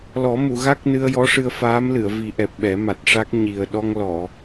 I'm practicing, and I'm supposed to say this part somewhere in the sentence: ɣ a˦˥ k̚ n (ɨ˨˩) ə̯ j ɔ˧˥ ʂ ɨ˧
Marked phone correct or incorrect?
incorrect